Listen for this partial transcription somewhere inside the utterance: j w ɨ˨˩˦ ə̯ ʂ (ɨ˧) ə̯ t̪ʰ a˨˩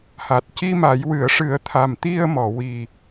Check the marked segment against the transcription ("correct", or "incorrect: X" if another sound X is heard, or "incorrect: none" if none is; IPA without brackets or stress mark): incorrect: ɨ˨˩˦